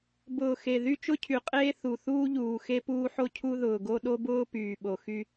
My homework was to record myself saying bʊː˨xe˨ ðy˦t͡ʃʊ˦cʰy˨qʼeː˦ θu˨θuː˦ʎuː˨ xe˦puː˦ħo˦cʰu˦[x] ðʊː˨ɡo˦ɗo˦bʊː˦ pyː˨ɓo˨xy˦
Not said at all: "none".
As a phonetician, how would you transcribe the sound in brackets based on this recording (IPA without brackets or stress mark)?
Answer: none